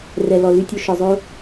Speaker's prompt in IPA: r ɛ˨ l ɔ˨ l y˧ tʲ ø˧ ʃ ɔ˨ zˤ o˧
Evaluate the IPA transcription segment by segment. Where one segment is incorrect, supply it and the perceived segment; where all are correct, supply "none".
none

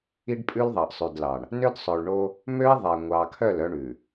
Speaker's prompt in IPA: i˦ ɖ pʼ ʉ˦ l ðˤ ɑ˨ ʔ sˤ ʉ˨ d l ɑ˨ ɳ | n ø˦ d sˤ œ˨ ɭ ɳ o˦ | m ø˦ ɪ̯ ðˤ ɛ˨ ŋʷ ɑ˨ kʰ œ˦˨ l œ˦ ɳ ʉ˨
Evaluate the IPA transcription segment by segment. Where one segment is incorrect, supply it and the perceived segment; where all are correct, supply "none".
none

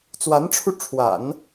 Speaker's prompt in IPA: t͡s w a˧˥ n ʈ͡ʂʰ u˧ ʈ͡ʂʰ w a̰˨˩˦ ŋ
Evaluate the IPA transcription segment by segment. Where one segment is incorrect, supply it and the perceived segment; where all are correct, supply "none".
ŋ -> n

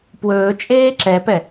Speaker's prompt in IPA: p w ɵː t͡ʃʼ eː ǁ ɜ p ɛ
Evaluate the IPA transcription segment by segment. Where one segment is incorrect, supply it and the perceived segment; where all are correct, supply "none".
ɜ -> ɛ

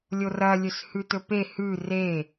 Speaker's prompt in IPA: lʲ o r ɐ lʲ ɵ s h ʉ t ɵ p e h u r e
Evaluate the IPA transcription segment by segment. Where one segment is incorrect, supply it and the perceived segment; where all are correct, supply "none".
u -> ʉ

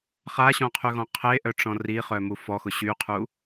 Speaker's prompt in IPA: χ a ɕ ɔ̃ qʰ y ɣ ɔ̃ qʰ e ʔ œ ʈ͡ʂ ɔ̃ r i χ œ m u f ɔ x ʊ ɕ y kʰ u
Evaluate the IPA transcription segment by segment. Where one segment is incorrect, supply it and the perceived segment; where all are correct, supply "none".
kʰ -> qʰ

